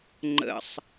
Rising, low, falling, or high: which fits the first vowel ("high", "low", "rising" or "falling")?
low